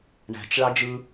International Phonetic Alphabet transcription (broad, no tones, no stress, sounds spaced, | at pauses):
ɳ æ̤ t͡ʃ ɭ ɑ d͡ʒ ɯ